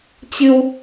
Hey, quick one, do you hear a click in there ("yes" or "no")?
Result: no